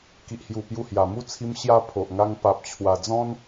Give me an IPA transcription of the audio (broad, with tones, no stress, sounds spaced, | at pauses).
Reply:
k i˨ ʔ h j u˨˩ p j u˧ h j a˨˩ m u˦ t͡sʰ i˧ m ɕ j a˧ pʰ o˨ ʔ ŋ a˧ ŋ p a˨ p̚ t͡ɕʰ w a˨˩ d͡z ɔ̃˦ n